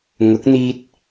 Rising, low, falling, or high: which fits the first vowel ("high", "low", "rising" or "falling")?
rising